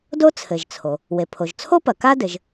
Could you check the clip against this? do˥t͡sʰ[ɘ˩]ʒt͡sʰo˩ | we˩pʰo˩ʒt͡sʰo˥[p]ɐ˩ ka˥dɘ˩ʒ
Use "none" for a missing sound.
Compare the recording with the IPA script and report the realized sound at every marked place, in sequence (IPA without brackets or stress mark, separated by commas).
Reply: ɘ˩, p